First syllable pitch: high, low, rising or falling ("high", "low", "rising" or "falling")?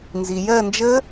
low